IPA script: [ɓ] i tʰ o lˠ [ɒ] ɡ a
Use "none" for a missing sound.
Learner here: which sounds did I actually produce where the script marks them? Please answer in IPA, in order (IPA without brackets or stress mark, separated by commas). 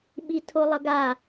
ɓ, ʌ